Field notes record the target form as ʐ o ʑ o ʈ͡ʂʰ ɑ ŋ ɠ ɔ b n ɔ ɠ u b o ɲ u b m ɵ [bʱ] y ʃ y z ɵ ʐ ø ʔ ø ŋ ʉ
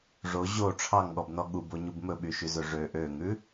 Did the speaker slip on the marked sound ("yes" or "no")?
yes